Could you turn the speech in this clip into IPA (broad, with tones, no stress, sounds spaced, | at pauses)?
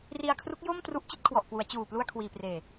r i˧ a̯ kʰ r u˦˥ k̚ j o˥˩ m t r u˦˥ ʔ t͡ɕ i˦˥ t̚ kʰ w ɔ˨˩ ʔ k w u˩˦ a̯ t͡ɕ uː˨˩ p l u˧ a̯ kʰ w iː˨˩ p r eː˨˩